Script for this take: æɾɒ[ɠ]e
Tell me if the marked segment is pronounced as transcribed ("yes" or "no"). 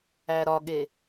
yes